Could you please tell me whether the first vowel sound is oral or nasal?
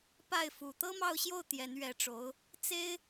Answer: oral